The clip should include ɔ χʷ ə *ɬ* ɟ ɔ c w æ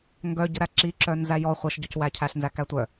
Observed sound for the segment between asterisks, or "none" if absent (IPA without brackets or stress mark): ʃ